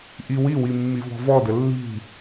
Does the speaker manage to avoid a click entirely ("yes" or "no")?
yes